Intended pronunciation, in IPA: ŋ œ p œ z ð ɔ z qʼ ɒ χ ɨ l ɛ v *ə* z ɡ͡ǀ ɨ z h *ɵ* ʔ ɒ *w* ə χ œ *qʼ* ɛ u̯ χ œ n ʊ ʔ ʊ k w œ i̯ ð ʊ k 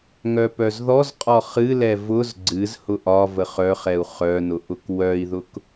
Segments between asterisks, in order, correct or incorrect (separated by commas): incorrect, incorrect, incorrect, incorrect